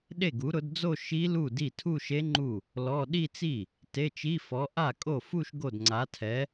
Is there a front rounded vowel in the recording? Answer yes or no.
no